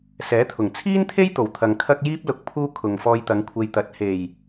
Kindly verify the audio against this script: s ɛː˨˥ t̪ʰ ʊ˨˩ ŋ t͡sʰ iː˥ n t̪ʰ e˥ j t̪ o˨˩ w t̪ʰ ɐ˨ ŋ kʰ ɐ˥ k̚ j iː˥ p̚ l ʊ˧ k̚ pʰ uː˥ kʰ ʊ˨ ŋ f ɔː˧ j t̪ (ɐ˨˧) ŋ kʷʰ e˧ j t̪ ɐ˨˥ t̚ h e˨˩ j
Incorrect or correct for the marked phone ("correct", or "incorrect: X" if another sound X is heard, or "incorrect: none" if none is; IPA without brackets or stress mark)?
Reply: correct